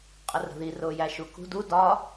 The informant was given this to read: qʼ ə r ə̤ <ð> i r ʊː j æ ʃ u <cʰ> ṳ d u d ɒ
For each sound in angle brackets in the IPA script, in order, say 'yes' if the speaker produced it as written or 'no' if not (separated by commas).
yes, no